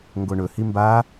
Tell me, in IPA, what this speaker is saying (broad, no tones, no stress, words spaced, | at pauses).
ŋɡoɳɵ himba